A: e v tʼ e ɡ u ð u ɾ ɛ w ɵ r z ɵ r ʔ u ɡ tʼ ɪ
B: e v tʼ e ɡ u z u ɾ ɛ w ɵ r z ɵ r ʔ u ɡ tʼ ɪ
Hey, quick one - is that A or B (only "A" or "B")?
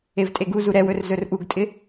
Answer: B